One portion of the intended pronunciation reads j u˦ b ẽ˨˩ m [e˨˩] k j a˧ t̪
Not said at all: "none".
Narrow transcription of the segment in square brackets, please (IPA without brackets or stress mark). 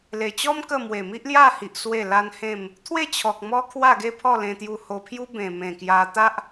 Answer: ẽ˨˩